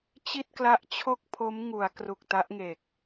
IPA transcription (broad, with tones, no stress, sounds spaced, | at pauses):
t͡ɕ i˥˩ t̚ k l a˦˥ ʔ t͡ɕʰ o˥˩ k̚ pʰ o˦˥ m ŋ u˩˦ a̯ k r u˨˩ k̚ t a˦˥ ʔ ŋ eː˨˩ k̚